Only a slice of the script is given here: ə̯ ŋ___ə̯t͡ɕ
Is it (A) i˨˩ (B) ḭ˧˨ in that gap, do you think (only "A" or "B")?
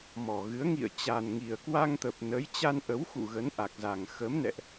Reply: B